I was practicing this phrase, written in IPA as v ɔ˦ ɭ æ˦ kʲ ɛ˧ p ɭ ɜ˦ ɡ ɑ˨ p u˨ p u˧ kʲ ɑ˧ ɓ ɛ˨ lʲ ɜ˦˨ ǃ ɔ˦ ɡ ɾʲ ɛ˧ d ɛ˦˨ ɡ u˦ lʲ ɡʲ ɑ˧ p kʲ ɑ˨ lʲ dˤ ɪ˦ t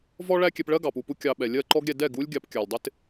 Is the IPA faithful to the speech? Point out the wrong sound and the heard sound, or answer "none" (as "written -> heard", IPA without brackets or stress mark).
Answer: none